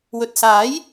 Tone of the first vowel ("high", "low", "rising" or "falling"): low